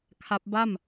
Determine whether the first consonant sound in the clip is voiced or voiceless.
voiceless